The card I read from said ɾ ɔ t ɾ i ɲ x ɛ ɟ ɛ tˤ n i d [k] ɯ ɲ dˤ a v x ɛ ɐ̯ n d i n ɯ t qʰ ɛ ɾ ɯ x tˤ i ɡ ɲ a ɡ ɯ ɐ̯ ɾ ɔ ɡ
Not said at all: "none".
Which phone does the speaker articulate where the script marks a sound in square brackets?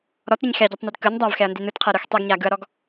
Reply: k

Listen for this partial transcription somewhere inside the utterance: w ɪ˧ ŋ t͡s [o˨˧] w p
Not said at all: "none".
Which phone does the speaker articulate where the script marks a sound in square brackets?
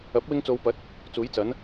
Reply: o˨˧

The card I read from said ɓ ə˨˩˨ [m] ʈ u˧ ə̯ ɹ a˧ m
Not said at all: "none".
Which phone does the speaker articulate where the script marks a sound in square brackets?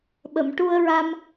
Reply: m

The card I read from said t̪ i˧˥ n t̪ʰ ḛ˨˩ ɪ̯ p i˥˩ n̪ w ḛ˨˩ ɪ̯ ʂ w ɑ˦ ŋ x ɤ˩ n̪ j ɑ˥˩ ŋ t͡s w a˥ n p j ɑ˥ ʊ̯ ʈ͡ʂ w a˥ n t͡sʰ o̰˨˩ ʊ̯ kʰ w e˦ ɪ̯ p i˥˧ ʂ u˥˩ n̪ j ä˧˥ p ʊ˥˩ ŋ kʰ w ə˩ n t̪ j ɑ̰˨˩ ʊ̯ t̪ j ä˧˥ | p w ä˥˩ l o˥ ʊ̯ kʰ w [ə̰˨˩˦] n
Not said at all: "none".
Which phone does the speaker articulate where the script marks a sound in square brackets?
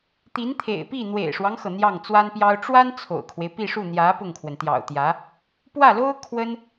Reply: ə˥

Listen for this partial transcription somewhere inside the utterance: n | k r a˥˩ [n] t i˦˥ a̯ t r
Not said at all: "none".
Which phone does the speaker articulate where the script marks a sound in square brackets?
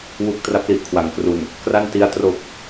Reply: n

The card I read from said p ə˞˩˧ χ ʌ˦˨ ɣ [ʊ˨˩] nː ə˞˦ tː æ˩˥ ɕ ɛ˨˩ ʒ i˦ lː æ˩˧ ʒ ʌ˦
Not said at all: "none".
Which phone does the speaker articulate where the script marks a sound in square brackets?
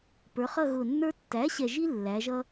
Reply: ʊ˨˩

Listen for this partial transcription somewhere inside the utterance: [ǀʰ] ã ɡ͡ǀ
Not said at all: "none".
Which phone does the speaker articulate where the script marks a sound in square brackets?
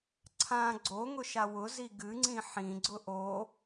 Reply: ǀʰ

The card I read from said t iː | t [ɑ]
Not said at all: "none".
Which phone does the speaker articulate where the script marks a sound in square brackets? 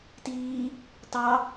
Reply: ɑ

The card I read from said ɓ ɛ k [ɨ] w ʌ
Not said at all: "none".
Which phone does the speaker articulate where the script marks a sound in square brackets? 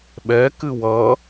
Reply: ɨ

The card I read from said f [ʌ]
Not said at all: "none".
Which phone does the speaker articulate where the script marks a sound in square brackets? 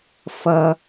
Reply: ʌ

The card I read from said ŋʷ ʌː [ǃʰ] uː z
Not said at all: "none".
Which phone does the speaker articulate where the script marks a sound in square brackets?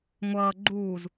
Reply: ɡ͡ǃ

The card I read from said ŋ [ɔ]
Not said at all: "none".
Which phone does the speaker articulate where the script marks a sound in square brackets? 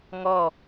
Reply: ɔ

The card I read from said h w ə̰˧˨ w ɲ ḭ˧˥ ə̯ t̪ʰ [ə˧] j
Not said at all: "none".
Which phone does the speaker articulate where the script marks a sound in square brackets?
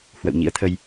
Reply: ə˧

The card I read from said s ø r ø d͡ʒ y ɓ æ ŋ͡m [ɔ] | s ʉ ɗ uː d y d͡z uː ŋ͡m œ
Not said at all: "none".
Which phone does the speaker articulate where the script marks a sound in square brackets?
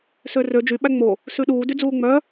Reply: o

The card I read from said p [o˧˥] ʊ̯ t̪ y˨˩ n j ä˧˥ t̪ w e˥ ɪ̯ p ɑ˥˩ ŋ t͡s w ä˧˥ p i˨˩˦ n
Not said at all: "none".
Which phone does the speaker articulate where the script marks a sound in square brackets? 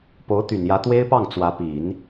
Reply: o˧˥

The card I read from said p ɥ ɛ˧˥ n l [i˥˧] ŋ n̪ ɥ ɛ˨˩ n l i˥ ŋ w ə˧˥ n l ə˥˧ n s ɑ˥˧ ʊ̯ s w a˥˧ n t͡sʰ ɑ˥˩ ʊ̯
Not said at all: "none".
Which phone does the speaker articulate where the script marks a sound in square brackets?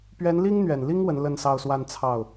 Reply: i˥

